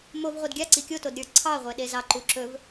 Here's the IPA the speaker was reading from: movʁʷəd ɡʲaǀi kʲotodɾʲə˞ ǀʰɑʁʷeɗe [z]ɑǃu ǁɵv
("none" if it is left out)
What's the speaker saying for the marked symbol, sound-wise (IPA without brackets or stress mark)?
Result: z